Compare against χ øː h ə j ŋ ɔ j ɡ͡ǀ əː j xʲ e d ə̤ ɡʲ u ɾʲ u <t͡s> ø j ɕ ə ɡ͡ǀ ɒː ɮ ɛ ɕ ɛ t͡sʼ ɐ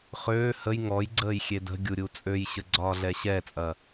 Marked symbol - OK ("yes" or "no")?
no